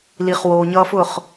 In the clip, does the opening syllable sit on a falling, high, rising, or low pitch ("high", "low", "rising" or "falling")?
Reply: low